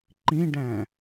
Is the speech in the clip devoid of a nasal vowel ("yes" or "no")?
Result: no